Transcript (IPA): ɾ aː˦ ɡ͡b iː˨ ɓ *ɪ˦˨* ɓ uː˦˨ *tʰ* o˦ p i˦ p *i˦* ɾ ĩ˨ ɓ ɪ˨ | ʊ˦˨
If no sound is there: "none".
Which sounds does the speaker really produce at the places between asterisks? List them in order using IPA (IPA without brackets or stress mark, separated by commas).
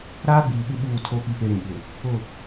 ɪ˦˨, tʰ, e˦